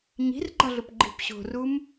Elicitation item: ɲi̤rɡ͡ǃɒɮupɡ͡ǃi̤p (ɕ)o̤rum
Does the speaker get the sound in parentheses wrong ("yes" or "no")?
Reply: no